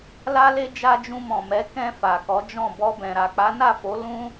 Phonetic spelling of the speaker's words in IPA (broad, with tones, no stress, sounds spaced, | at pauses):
l a˦ l e˦ d͡ʒ a˧ d͡ʒ ũ˧ m ɔ̃˨ m ɛ˨˦ k ɛ̃˧ f a˨ k ɔ˨˦ d͡ʒ ɔ̃˦˨ b ɔ˧ b ɛ̃˨ ɾ a˨ k͡p a˨˦ n a˦˨ f o˨˦ l ũ˦